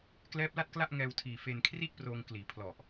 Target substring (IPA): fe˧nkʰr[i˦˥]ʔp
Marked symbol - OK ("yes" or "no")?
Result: no